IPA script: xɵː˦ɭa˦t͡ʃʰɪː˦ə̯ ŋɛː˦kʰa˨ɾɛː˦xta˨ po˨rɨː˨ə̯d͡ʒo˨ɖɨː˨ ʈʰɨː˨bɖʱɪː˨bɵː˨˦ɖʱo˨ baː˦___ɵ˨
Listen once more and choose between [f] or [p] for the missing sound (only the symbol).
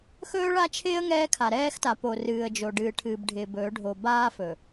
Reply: f